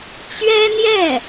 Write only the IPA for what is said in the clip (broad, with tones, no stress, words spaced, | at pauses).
t͡ɕɥɛ˥n̪jɛ˥˩